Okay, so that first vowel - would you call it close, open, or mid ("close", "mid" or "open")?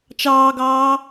open